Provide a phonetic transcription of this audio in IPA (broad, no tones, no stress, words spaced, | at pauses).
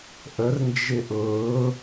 ʔərnd͡ʒɪ ʔʊː